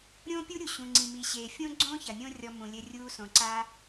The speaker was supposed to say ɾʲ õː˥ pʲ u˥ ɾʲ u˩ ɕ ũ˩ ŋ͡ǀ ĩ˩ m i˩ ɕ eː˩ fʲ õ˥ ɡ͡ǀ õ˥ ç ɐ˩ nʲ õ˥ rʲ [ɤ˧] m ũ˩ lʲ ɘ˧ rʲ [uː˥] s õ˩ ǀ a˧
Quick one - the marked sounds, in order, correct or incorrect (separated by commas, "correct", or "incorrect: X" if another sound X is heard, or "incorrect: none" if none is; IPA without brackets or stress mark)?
incorrect: ɔ˧, incorrect: uː˧